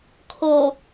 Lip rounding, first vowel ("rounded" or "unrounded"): rounded